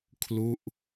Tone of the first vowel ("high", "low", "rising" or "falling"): falling